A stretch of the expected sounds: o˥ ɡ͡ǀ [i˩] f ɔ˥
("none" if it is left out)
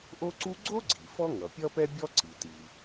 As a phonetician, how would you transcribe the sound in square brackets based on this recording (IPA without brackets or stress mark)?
i˩